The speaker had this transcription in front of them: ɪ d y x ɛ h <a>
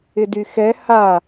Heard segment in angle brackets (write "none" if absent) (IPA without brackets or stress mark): a